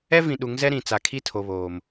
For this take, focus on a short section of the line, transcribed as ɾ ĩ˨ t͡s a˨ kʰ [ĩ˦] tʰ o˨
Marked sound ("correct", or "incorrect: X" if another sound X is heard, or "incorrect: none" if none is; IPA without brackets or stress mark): incorrect: i˦